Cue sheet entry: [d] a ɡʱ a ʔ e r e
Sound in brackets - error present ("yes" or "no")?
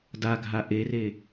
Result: no